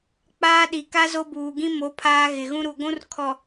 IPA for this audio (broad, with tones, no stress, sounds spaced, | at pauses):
k͡p aː˦ ɗ i˨ k a˦ z o˦ b uː˨ ɡ ĩ˦ m o˨˦ pʰ aː˦ ɣ ɪ˨ ɣ ũ˦ ɾ u˨ ɡʷ ũ˦ r kʰ ɔ˨